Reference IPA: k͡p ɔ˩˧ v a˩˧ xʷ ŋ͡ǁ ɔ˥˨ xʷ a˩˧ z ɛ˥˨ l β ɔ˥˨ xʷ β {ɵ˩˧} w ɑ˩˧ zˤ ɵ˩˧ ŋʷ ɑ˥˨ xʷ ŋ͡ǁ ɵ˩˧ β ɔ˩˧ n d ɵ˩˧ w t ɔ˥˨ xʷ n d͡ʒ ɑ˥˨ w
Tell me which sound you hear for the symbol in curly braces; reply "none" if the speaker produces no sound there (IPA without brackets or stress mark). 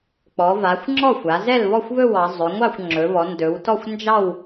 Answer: ɵ˥˨